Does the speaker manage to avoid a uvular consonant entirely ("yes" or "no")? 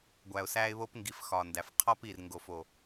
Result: no